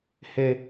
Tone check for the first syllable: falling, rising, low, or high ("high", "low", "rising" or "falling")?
high